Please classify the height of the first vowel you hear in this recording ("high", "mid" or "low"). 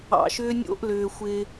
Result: low